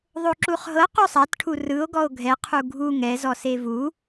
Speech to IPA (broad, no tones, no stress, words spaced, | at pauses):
ðˤoǁuχɦɤ qosˤatʈʰu rɯo̯ ɡɔo̯ɡʱɛqʰu ɡʱu ŋɛzɔ sevu